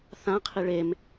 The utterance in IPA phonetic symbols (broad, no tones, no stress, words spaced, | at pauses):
θãqʰi ɭem